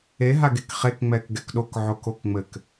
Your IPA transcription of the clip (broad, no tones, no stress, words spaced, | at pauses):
eɦaɡek χek ŋ͡mɛkɡɛkɗok ʕokokŋ͡mɘk